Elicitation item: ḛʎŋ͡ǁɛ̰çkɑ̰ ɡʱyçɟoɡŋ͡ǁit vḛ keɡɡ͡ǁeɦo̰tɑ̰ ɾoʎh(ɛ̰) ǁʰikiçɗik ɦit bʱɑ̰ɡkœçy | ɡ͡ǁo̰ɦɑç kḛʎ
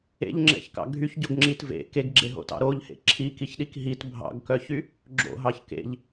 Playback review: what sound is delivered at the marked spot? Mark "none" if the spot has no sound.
ḛ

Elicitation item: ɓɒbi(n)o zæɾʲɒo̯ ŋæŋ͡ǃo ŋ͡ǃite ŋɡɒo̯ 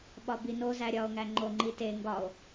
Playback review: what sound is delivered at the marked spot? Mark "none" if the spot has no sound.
n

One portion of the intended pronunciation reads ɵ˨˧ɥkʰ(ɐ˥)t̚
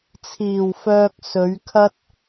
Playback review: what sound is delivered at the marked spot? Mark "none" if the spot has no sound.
ɐ˥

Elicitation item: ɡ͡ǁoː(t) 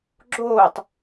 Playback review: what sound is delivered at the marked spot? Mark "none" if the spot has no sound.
tˤ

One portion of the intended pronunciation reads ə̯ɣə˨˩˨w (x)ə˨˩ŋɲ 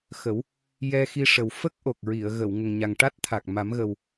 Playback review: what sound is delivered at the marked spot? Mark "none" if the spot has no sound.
ŋ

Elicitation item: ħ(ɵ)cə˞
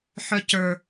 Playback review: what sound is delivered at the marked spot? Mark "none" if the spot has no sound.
œ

